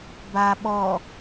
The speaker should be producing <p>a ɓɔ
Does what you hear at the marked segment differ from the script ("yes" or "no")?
yes